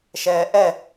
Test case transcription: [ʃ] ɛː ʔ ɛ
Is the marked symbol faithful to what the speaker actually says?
yes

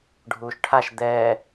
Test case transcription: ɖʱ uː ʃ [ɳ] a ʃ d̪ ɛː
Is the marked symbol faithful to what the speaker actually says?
no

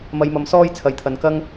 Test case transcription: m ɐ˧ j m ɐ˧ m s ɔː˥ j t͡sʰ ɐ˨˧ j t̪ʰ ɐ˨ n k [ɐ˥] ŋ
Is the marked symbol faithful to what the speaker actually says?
yes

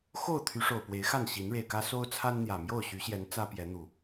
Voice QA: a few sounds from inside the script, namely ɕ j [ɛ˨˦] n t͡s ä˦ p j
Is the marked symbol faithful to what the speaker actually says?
yes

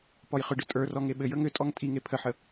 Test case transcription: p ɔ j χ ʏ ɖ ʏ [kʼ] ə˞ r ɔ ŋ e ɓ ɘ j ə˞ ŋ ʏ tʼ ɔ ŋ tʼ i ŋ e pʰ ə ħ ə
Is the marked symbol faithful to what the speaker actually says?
no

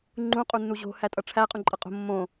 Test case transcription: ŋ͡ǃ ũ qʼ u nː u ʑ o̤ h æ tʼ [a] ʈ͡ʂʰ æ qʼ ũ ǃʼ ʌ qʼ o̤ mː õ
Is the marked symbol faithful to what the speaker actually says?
no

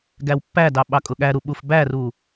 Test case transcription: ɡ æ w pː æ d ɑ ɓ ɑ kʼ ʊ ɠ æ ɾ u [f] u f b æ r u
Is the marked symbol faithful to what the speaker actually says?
no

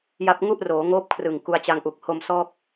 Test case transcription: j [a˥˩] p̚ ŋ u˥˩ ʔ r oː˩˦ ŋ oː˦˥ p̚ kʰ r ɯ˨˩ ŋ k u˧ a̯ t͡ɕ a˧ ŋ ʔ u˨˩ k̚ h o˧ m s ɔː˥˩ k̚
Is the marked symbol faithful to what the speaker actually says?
no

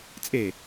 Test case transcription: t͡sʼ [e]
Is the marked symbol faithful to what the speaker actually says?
yes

